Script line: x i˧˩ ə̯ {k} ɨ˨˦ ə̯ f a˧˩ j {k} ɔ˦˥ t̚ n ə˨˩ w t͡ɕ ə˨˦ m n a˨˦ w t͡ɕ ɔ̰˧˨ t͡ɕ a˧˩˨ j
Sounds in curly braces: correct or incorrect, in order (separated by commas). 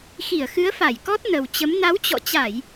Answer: incorrect, correct